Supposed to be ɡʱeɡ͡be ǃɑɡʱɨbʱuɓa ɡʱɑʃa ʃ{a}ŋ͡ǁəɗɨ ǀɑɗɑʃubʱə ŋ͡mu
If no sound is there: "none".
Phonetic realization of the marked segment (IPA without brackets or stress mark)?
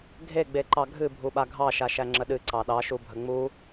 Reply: æ